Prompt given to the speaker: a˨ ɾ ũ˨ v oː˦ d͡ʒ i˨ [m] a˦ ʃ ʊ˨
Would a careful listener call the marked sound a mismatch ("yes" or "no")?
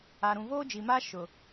no